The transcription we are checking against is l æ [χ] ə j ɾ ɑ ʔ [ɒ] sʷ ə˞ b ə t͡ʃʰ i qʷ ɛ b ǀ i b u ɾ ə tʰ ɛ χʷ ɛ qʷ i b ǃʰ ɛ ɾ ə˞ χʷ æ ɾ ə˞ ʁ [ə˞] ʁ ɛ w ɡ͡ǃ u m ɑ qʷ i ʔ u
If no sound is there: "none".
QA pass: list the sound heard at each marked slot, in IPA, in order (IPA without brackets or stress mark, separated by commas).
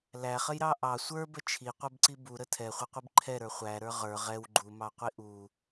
χ, ɑ, ə˞